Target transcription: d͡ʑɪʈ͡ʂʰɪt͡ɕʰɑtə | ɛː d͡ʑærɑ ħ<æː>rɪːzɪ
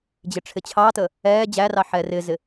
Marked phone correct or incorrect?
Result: incorrect